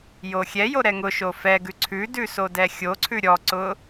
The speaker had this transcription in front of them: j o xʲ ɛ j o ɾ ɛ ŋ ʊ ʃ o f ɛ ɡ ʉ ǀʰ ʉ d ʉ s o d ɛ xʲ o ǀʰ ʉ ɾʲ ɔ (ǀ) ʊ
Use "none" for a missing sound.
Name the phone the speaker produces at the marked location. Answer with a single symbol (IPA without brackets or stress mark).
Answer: ǀ